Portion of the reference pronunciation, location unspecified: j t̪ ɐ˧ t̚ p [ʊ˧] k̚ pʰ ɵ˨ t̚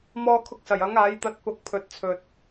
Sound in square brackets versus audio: correct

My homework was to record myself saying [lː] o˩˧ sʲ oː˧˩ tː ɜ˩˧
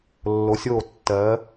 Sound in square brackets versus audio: correct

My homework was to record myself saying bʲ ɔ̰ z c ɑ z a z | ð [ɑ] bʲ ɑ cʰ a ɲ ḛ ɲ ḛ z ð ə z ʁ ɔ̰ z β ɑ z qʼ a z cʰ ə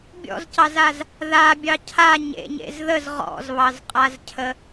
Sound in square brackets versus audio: incorrect: a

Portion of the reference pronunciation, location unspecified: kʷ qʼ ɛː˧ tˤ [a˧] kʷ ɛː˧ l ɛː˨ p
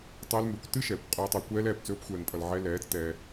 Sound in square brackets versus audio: incorrect: ɑ˧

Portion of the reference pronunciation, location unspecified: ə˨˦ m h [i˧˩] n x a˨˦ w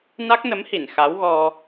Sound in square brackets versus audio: correct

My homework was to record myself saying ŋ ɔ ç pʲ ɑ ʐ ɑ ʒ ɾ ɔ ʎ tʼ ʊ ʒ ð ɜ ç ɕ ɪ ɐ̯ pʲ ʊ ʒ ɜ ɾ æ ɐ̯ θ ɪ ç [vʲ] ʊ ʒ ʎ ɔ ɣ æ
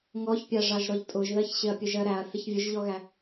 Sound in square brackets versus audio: correct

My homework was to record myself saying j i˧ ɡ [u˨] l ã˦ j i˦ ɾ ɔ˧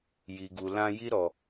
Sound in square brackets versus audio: incorrect: u˧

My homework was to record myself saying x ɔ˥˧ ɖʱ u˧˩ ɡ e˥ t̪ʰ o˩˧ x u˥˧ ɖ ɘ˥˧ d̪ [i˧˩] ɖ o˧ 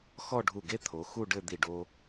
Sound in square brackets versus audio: correct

